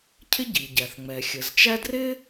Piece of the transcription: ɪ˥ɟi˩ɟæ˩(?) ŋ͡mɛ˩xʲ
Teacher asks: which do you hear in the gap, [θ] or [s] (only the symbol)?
θ